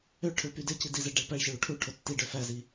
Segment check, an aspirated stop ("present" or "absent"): present